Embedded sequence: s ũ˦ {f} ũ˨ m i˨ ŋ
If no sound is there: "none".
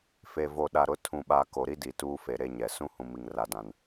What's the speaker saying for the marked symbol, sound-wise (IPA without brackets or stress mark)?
h